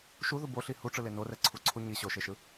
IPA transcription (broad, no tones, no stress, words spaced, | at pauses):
ʃuðu boɬi huʈ͡ʂɯle norɛǀʰuǀʰu ɲi ɕoʃeʃɯ